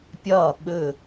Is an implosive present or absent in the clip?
present